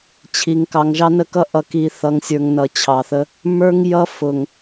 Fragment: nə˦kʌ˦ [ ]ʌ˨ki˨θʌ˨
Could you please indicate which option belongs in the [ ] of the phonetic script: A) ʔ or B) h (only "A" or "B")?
A